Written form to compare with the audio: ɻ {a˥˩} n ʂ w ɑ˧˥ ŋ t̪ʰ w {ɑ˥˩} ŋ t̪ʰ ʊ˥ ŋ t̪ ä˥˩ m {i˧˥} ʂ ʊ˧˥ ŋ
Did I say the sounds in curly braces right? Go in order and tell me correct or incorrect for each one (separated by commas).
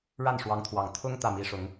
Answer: correct, incorrect, correct